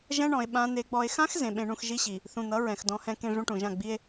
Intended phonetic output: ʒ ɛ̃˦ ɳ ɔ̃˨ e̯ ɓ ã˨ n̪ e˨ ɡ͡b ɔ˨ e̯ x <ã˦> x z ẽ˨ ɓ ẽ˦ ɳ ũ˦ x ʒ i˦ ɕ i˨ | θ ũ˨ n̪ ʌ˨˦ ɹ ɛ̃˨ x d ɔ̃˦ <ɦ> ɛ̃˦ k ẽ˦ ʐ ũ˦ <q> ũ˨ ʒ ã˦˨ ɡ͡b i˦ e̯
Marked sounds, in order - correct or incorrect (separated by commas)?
correct, incorrect, incorrect